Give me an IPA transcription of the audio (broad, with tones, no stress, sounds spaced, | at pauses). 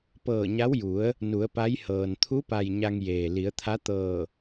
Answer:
p ɤː˧˩ ɲ a˧˥ w j u˩˧ ə̯ | n u˩˧ ə̯ p a˧˥ j h ɤː˩ n t̪ʰ u˧˥ p a˩ j ɲ a˧ ŋ j eː˩ l i˩˧ ə̯ t̪ʰ a˧˥ t̪ ɤː˧˩